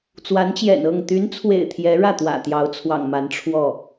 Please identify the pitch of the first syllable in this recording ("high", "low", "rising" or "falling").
rising